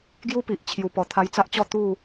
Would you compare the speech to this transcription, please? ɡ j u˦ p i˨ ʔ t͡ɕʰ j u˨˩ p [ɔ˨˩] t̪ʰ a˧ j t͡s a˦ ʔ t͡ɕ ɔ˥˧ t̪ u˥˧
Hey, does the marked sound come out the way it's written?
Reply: yes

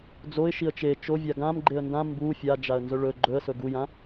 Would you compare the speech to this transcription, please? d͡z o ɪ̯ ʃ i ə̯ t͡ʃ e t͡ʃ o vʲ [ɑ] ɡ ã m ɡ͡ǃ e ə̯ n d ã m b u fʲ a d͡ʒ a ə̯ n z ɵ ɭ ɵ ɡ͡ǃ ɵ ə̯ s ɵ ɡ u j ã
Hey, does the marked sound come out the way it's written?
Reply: no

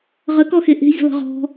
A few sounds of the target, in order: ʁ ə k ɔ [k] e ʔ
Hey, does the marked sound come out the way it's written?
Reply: no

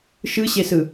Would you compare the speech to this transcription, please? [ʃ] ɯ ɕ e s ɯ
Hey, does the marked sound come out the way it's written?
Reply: yes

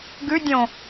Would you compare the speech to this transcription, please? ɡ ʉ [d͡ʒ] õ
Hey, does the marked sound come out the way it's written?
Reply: no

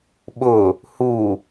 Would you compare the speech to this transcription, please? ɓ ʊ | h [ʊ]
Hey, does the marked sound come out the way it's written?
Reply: no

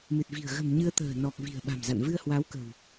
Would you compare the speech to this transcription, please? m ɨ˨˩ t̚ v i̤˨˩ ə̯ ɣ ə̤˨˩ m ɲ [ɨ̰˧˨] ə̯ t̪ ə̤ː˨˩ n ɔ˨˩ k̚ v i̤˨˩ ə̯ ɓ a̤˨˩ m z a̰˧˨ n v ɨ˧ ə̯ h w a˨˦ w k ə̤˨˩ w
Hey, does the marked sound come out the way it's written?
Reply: no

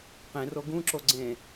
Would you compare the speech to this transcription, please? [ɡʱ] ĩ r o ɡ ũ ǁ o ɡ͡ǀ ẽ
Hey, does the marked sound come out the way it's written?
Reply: no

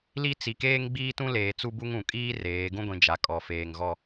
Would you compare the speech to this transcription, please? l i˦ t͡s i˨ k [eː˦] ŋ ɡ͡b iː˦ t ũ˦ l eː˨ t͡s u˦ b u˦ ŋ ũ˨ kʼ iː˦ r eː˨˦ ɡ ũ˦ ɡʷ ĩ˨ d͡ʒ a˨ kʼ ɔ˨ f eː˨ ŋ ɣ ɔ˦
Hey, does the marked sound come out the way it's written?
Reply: yes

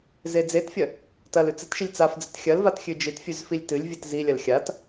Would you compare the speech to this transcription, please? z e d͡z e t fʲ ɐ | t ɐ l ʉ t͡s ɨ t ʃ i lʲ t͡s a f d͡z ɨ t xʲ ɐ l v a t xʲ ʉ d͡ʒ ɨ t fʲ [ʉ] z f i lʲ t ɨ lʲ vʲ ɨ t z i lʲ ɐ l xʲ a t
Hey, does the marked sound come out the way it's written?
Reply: yes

